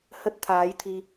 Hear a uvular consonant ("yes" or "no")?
no